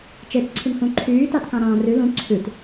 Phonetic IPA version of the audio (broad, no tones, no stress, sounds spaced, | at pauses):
t͡ʃ e t͡s ǀʰ y ŋ h ũ ǃʰ yː t ɑ t k ɑ̃ ɾ ɑ̃ː r ʉ l ũ ǀʰ ʉ t